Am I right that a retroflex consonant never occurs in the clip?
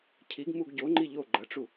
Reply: no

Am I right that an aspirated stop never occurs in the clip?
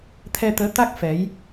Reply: no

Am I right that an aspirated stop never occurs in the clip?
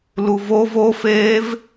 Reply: yes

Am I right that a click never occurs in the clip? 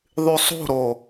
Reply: yes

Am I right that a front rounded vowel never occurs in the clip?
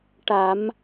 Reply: yes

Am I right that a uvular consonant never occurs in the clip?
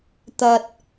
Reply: yes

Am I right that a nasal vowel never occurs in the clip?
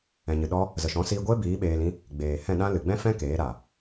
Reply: no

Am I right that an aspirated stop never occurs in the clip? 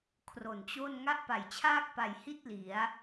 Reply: no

